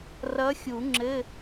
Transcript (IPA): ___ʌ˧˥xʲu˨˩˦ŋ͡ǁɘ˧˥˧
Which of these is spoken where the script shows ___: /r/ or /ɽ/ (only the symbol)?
r